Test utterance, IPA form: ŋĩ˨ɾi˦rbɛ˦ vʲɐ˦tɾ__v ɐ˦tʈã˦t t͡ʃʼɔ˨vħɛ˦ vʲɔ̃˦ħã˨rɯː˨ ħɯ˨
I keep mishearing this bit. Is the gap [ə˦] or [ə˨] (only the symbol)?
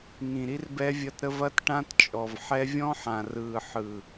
ə˦